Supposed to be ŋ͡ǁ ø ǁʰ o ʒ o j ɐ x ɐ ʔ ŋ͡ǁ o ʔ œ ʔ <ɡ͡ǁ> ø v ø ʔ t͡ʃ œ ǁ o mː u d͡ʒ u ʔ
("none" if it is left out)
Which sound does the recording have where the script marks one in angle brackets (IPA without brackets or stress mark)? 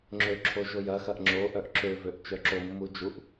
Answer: ǁ